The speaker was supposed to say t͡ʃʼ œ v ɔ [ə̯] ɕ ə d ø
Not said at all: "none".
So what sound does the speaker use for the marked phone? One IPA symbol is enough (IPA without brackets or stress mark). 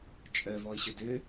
ɪ̯